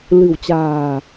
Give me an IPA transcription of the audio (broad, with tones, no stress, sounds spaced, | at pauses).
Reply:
l ɨ̤˨˩ w t͡ɕ a̤ː˨˩